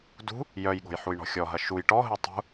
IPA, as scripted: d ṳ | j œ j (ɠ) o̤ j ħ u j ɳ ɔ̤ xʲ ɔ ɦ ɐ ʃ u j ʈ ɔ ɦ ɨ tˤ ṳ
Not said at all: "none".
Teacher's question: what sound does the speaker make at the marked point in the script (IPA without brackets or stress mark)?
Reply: ɠ